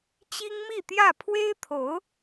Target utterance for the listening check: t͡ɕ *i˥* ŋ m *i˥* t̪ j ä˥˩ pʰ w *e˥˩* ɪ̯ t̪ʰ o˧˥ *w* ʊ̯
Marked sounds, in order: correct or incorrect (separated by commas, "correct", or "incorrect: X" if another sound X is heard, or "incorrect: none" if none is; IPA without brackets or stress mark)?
correct, incorrect: i˥˧, incorrect: e˥, incorrect: none